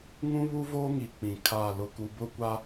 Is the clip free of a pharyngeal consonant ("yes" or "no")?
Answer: yes